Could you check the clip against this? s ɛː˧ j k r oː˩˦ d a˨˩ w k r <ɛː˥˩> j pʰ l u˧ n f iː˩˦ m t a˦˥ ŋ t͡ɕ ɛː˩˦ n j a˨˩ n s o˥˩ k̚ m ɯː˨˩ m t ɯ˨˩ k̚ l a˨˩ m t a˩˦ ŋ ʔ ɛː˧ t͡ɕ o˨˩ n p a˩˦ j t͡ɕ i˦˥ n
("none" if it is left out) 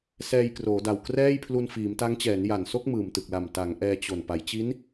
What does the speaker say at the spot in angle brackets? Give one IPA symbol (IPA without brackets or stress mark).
ɛː˥˩